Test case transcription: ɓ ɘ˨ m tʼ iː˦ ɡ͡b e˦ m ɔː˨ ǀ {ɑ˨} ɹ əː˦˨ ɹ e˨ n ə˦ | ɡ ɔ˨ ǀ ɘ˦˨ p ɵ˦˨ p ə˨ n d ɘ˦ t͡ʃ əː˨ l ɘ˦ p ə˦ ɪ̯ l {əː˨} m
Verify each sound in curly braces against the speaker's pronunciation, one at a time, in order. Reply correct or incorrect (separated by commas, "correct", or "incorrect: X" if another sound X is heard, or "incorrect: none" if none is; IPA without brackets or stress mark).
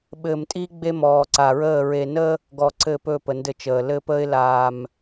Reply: incorrect: a˨, incorrect: aː˨